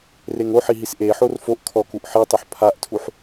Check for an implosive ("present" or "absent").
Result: absent